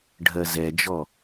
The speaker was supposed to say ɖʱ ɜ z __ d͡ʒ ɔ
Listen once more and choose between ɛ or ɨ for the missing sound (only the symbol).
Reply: ɛ